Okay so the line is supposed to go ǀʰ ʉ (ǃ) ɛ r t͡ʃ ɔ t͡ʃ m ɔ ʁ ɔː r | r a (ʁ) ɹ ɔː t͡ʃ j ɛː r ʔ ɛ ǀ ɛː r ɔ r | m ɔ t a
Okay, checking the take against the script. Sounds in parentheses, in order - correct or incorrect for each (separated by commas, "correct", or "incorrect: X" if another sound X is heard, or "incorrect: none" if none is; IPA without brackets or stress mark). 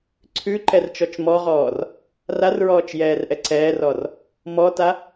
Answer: correct, incorrect: r